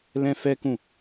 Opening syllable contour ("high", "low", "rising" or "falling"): high